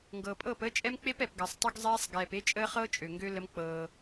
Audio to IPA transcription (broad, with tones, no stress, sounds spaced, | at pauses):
ŋ ɡ ɤː˨ pʼ ɤː˦˨ p əː˦ t͡ʃʼ ɛ˦ m k͡p e˦ p ɛ˨ p ɡ əː˨ sˤ tˤ u˦ ɡ zˤ ɛː˦ sˤ ɡ ɛː˨ p e˦ t͡ʃʼ əː˦ χ ɤː˦ t͡ʃʼ ø˨ ŋ ɡ ø˦ l ə˦ m k͡p ɤː˦